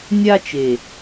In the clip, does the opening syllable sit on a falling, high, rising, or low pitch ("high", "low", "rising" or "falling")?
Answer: high